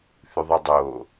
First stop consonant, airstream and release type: plain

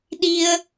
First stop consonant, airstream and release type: implosive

